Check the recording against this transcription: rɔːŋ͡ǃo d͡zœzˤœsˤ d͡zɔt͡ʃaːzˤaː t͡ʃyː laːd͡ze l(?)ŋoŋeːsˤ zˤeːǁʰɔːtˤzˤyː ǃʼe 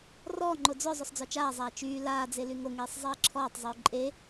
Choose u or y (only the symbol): y